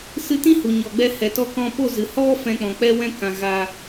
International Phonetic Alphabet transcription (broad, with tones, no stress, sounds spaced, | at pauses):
s ɨ˧ t ĩ˦ h u˨ ɲ ɔ˨ ɡ͡b ɛ˧ h ɛ˨ t ɔ˧ k ɔ̃˧ p o˦˨ z ɨ˨ h ɔ˦ f ɛ̃˧ k͡p ɔ̃˨ k͡p ɛ˦ w ɛ̃˦ k ã˨ ɣ a˧